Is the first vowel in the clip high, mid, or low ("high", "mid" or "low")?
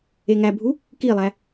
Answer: mid